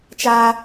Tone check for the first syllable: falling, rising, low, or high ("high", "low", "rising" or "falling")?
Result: high